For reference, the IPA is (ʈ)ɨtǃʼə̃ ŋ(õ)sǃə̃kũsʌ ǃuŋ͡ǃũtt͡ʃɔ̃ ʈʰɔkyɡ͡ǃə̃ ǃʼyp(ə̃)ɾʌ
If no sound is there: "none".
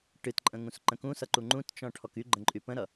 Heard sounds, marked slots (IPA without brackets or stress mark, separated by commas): ʈ, ũ, ə̃